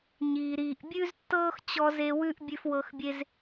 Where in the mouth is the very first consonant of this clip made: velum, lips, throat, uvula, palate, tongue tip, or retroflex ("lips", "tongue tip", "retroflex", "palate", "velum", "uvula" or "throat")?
palate